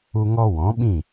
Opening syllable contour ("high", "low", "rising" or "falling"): high